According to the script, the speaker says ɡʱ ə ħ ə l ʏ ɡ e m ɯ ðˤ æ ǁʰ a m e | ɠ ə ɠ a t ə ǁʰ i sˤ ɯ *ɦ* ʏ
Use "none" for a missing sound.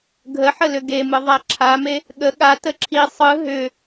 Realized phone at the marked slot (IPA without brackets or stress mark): ɦ